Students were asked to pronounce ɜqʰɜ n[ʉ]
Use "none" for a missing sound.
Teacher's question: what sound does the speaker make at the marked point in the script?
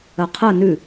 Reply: ʉ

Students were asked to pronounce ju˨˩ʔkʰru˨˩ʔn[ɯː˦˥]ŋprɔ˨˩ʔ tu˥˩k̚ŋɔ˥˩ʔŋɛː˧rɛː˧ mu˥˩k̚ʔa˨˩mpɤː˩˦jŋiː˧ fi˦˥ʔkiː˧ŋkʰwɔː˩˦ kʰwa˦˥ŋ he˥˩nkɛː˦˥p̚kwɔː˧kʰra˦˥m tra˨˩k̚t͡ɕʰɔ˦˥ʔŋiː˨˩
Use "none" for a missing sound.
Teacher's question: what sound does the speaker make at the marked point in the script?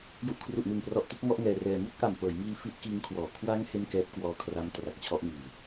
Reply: ɯː˨˩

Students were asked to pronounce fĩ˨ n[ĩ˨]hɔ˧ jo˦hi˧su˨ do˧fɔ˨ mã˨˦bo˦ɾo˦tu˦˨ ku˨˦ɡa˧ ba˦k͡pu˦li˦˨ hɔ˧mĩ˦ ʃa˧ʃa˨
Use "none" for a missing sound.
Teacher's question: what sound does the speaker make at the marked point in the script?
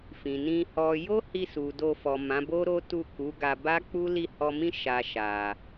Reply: ĩ˧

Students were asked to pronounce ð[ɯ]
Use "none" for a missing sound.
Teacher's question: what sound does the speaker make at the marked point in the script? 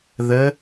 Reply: ə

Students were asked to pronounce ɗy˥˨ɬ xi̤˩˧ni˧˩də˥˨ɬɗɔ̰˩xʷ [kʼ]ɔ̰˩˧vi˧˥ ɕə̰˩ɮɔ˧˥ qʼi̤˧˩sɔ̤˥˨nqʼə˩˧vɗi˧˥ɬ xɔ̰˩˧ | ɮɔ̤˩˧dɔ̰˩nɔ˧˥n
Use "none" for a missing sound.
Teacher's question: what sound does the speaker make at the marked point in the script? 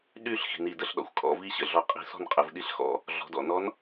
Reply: kʼ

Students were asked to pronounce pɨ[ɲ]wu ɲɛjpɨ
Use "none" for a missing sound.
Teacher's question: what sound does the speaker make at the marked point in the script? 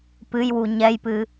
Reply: j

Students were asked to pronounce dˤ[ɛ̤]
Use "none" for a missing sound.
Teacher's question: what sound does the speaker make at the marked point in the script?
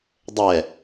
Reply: ɛ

